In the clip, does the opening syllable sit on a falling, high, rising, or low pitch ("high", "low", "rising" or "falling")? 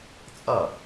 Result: falling